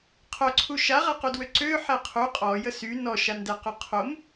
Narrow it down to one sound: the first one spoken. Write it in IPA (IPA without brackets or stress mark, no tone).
qʰ